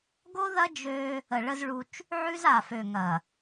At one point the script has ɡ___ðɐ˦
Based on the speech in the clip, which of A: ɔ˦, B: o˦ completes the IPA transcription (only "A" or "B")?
B